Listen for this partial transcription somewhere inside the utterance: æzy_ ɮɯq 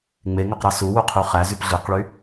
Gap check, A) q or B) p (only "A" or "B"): B